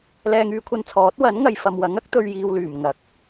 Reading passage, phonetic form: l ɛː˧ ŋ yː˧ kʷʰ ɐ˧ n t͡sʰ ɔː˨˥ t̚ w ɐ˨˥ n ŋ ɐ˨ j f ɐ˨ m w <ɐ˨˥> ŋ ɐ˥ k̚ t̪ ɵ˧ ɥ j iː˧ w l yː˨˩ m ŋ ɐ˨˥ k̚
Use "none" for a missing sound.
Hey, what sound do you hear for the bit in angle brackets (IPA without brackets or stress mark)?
ɐ˨˥